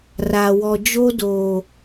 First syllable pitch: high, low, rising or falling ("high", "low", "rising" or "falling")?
low